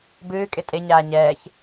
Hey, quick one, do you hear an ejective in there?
yes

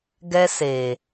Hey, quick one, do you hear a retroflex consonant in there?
no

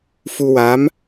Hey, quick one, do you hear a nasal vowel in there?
no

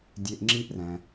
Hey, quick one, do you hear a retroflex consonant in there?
no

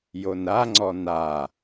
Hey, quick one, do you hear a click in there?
yes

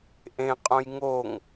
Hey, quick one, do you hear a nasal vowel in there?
yes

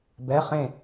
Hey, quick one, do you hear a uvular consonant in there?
yes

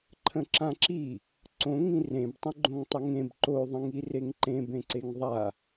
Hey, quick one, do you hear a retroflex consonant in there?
no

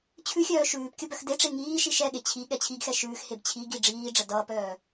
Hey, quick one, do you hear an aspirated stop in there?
yes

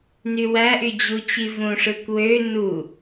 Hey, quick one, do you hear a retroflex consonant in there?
yes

